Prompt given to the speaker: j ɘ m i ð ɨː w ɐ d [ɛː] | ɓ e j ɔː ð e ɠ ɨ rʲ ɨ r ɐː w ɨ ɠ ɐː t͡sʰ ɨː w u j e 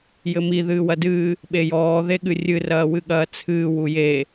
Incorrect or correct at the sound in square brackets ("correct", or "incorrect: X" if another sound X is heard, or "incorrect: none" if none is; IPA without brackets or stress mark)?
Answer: incorrect: ɨː